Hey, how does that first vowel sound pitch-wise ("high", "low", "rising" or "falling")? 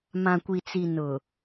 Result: low